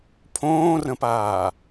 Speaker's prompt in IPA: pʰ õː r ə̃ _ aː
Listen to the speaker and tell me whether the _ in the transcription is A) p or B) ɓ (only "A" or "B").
A